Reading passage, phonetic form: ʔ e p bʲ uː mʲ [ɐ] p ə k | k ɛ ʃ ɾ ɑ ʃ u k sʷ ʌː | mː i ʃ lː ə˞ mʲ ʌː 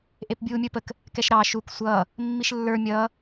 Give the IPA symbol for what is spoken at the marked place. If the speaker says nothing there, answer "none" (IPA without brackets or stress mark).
ə˞